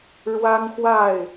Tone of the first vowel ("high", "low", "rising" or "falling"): high